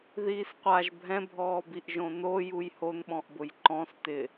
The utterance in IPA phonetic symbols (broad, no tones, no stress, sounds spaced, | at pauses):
ð iː s qʷ a ʒ bʱ ɛ̃ bʱ ɔː b i ʔ ʒ õ n o j u j h o n ɓ ɔ̃ ʔ b ʊ j ǃ ɔ̃ s t ɪ